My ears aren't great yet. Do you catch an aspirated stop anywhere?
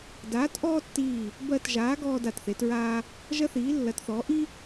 no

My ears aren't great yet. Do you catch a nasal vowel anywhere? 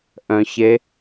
yes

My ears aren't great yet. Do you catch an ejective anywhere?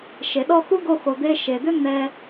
no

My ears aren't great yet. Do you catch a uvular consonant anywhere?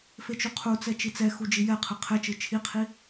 yes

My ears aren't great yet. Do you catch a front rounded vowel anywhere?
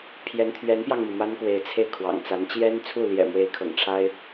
no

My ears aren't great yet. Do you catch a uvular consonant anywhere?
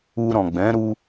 no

